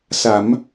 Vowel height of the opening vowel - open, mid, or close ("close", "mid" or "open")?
open